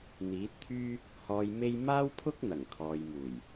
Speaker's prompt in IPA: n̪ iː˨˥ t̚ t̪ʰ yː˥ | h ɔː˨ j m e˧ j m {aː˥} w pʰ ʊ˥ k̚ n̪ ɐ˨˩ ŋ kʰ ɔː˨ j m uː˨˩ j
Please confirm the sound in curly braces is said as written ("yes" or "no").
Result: yes